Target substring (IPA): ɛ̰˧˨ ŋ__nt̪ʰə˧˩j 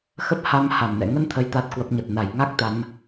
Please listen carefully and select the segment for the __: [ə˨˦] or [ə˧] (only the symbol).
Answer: ə˧